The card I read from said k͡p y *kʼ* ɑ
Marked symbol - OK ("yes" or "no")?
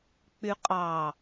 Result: no